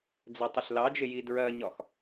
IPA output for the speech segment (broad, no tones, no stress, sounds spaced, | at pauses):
d͡z ɛ tˤ ʊ ɬ l ɑ d͡ʒ ɪ j i d ɹ ɜ ɲ ɒ x